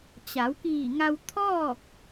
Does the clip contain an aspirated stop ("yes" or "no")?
yes